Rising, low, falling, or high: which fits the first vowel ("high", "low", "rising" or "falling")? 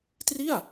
falling